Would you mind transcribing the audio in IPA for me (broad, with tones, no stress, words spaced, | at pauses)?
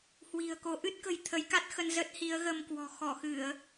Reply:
hwi̤˨˩ə̯ko˨˦ ʔɨ˦˥t̚kə̤˨˩j t̪ʰə˨˦jka˦˥t̚xə˧n zə˦˥t̚ hi˨˦ə̯ɣə˧mkwɔ̤˨˩ xɔ˧˩xɨ˧˩˨ə̯